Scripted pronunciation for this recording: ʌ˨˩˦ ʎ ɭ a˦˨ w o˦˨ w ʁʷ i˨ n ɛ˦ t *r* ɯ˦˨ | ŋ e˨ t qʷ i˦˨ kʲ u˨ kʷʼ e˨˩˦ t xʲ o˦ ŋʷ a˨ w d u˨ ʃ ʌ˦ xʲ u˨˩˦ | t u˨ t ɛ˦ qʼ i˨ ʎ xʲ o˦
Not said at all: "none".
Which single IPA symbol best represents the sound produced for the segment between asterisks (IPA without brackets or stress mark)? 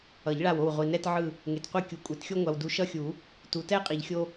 ʕ